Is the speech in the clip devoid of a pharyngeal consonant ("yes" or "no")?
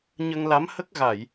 yes